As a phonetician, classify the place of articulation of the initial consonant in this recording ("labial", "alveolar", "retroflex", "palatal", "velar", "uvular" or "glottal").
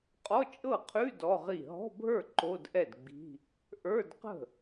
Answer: uvular